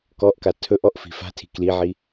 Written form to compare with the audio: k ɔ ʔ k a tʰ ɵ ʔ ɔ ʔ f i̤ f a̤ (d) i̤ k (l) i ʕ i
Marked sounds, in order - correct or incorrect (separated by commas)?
incorrect, correct